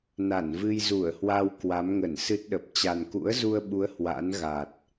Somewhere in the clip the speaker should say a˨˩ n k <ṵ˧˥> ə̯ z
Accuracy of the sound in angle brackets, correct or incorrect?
correct